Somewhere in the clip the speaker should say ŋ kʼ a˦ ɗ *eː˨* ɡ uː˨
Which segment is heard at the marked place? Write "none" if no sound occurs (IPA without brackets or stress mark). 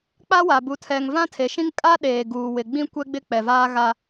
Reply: eː˨